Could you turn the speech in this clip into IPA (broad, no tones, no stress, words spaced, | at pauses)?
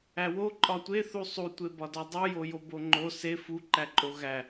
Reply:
æwo ǃʼɒtʷeθu sˤutʷebɒdɒ dˤujojo boŋ͡ǃo se fuǃæǃʼo ɣæ